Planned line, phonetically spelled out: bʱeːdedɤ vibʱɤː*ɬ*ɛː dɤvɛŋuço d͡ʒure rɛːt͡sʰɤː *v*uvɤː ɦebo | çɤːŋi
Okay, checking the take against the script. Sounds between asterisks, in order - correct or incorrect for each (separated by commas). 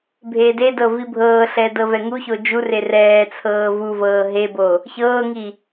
correct, correct